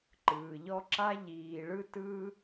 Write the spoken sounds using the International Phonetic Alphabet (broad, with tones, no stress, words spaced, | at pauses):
ǃɯː˨ʎɔ˦ ǁa˦ ʎiː˨ ɭɯ˦tɯː˦